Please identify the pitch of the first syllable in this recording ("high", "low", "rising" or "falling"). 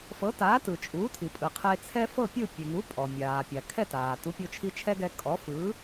rising